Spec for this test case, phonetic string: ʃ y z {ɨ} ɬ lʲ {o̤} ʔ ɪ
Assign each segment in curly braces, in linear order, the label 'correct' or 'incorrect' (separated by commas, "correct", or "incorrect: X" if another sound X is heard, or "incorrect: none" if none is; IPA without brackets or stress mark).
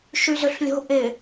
incorrect: ʏ, correct